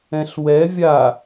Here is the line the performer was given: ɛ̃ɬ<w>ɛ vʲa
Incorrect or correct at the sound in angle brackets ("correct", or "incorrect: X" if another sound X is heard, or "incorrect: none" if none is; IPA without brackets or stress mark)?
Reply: correct